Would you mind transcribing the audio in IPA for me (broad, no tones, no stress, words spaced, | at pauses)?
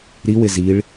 ɾiwɪ ziɭ